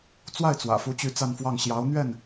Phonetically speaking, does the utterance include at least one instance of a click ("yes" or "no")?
no